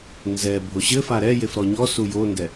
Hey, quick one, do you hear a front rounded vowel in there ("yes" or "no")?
no